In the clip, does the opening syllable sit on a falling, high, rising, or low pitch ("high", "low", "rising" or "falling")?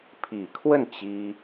low